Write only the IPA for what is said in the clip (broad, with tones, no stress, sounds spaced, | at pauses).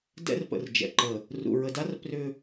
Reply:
d ɛ̰˦ r p ə̰˨ r d͡ʒ ɛ̰˨ ǃ ə˨ | r ṵ˨ ɹ ə˨ d a˦ r p r ʏ˦